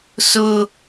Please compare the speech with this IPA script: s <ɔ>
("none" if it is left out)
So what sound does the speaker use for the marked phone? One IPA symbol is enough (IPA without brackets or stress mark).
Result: ʊ